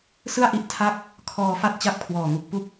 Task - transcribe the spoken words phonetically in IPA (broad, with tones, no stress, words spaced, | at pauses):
sɯ˥˩a̯ʔi˦˥ʔ tʰa˥˩k̚ | kʰɔː˧ fa˥˩t̚t͡ɕa˥˩p̚kʰwɔː˨˩ŋu˨˩k̚ pu˥˩k̚